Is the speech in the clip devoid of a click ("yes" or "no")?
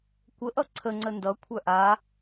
no